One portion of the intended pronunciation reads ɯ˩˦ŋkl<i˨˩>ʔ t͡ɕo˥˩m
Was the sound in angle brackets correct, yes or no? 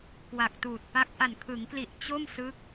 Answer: yes